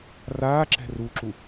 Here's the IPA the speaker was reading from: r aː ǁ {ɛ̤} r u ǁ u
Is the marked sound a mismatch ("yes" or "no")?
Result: no